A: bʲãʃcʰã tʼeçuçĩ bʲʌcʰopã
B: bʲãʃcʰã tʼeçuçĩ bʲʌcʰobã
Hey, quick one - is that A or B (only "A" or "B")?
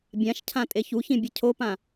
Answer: A